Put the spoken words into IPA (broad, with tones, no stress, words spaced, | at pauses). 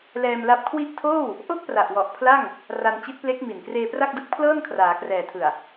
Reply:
lɛː˧mla˦˥p̚kʰwi˥˩ʔ tʰoː˥˩w | ʔo˥˩k̚pra˨˩ʔwɔ˨˩ʔ pʰla˥˩ŋ | ra˧nt͡ɕi˦˥t̚ple˦˥k̚ mi˨˩nkreː˧pra˥˩k̚dɯ˦˥k̚ pʰlɤː˥˩nkʰraː˩˦krɛː˨˩ tʰɯ˨˩a̯